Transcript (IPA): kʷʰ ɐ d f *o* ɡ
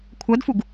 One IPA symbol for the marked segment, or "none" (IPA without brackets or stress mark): u